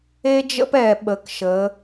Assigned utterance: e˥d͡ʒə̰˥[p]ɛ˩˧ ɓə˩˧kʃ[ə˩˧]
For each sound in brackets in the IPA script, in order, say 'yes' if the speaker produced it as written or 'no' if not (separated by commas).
yes, yes